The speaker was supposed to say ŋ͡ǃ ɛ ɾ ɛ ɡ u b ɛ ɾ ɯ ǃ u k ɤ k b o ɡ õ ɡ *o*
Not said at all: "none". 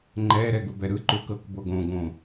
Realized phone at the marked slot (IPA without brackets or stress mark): õ